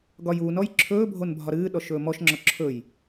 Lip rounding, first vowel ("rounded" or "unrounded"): rounded